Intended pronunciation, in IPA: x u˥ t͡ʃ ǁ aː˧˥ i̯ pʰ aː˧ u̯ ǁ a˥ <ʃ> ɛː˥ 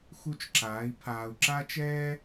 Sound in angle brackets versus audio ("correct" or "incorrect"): incorrect